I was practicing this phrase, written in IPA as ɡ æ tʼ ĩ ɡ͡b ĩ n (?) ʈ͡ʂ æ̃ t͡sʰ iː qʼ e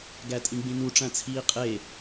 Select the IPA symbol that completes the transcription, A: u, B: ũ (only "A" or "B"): A